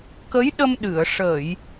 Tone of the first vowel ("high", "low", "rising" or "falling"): rising